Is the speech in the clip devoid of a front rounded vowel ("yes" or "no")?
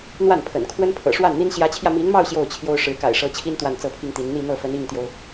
yes